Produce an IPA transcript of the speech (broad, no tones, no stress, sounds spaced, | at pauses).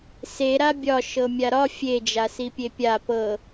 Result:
s e ɾ a bʲ ɒ ʃ ɤ mʲ a ɾ ɒ fʲ e d͡ʒ a s i pʲ e pʲ a p ɤ